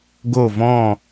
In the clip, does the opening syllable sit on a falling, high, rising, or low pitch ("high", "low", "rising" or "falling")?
falling